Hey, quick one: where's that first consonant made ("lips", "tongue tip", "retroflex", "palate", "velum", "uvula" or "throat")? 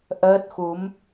throat